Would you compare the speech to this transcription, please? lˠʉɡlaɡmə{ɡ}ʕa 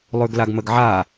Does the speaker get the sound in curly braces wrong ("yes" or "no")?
no